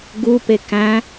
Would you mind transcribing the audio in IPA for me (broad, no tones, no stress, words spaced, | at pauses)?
ɡupe kæ̃